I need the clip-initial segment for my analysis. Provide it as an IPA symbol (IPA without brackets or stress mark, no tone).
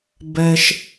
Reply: b